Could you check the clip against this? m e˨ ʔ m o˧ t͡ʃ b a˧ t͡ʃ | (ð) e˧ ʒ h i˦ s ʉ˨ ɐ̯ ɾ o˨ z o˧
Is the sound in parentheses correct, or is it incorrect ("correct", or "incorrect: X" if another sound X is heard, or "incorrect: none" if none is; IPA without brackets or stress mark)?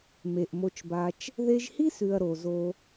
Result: correct